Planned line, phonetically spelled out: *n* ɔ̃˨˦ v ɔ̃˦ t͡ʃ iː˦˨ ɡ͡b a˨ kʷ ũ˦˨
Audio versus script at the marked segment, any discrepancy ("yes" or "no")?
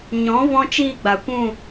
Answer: yes